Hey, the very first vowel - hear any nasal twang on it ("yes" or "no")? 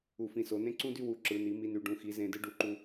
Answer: no